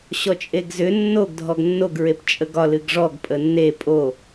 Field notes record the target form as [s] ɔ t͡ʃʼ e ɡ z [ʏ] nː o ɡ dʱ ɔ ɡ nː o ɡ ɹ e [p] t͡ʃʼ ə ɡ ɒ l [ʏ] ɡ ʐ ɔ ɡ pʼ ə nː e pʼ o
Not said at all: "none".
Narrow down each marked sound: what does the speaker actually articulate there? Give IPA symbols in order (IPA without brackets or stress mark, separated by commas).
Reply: ɕ, ʏ, p, ɨ